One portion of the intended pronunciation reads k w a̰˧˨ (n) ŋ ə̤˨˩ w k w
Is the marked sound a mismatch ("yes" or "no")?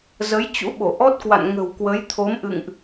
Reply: no